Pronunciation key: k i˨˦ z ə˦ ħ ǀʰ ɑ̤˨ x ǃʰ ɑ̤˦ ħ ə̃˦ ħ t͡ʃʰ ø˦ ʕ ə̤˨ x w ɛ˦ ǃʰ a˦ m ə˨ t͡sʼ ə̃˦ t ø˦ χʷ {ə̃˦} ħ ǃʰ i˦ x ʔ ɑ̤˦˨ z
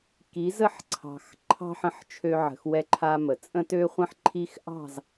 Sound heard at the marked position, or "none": ə̃˦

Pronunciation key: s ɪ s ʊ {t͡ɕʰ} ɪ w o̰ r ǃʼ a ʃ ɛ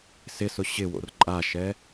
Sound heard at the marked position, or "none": ɕ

